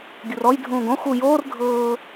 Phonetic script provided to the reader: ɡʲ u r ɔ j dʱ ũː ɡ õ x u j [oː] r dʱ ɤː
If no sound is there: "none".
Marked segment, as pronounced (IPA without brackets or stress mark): oː